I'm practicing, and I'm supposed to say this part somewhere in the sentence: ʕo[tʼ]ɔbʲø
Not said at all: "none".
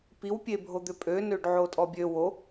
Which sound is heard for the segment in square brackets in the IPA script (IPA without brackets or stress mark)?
tʼ